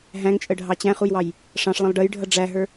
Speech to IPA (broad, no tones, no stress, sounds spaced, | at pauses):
ɦ æ̃ ŋ t͡ʃʼ ə ɖʱ ɑ t͡ɕ æ̃ χ u j w ɑ j | ʂ ɑ̃ ʂ lˠ ə̃ lˠ ɖ ə j ɖʱ ʌ ɖ͡ʐ æ ɦ ə˞